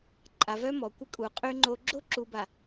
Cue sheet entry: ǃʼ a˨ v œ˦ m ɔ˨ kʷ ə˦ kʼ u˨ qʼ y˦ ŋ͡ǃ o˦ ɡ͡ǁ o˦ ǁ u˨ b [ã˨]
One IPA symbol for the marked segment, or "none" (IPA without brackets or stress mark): a˨